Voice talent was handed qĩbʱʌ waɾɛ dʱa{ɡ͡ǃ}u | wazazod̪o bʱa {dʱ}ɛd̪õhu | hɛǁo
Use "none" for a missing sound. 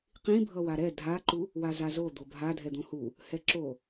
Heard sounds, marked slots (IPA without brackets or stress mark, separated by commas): ǃ, dʱ